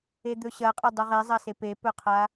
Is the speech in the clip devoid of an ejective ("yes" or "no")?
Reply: no